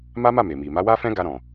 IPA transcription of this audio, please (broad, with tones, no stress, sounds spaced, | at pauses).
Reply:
m a˦ m a˦˨ m e˨ m i˨ m a˨˦ w a˦ f ɛ̃˦ ɡ a˧ ɾ ɔ̃˨